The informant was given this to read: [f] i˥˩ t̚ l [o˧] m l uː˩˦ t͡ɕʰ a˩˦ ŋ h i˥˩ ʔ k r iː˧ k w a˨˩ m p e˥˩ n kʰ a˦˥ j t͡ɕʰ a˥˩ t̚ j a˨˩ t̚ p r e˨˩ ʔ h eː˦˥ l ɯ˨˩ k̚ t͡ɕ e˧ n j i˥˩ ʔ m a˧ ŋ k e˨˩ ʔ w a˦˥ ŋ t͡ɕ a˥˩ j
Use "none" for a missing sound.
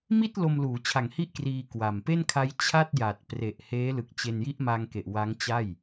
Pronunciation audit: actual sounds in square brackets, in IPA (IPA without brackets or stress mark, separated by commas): m, o˧